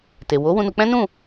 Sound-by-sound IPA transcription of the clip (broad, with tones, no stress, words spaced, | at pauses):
te˨ wo˨˦wũ˧nu˧k͡pɛ̃˦ nũ˦˨